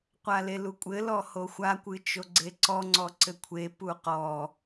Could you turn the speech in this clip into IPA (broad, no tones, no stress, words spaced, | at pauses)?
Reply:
qʷalelukʷʼɘ lɔhoxʷa kʷɨt͡ʃoɡ͡ǀeǀɔ ŋ͡ǀɔǀɘkʷʰe puqɔ